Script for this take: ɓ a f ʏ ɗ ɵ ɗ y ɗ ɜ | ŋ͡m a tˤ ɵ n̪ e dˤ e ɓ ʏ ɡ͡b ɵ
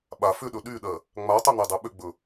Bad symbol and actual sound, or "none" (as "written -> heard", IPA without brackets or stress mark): none